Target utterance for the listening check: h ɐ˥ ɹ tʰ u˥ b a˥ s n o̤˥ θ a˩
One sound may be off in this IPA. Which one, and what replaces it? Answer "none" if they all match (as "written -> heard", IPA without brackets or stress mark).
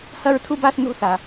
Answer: none